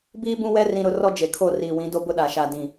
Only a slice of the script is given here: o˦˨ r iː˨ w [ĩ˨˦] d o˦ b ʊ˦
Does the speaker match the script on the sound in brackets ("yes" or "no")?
yes